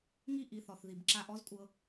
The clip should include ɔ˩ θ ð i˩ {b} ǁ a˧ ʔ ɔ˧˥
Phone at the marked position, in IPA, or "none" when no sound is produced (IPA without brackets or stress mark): b